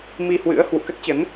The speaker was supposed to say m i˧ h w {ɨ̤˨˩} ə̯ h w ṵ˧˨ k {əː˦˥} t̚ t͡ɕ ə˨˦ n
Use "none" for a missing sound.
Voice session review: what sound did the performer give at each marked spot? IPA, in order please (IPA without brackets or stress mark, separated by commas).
ɨ̰˧˥, ə˦˥